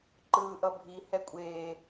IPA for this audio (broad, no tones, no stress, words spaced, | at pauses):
ǃɯːʔʌbʱi hɛkʷʼeː